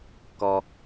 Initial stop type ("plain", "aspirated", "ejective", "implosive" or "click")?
plain